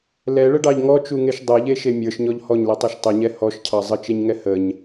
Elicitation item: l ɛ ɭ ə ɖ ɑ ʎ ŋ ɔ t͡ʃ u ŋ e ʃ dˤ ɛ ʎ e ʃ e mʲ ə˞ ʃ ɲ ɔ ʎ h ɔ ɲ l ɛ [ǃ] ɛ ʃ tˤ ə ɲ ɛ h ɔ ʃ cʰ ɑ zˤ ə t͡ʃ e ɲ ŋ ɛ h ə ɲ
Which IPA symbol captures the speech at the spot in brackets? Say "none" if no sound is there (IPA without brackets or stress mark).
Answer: tˤ